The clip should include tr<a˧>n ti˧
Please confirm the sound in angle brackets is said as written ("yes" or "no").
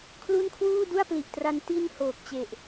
yes